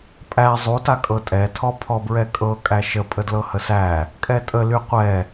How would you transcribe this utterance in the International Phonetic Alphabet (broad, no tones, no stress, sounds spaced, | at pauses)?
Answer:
pʼ æ zˤ u t a kʼ ɤ tʼ ɛ tʰ ɔ pʰ ɔ b ɹ ɛ kʼ ɤ kʼ æ ʃ ə pʼ ə d l ɤ h ə s æ | kʼ ɛ tʼ ə l y qʷ ɛ